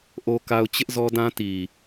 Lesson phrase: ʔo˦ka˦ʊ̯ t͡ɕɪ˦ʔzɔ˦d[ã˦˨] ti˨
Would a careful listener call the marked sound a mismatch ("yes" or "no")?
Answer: yes